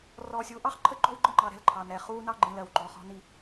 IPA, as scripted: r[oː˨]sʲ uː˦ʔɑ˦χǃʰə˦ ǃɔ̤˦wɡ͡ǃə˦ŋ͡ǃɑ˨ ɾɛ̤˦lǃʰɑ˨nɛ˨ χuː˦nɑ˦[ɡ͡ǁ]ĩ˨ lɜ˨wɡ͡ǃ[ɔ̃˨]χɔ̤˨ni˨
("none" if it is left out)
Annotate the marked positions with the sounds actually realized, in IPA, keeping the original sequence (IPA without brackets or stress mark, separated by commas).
ɔː˨, ɡ͡ǃ, ɔ˨